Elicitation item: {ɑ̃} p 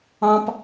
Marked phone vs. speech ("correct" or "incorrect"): correct